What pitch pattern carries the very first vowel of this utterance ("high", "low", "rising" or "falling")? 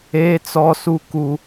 high